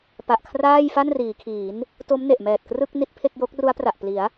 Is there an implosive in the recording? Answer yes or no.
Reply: no